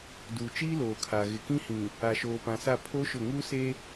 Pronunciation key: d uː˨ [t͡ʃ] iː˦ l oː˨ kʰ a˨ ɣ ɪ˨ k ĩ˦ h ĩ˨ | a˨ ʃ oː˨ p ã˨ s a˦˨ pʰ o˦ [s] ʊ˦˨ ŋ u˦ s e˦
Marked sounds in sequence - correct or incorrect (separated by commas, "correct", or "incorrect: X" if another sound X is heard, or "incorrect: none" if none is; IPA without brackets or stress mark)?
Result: correct, incorrect: ʃ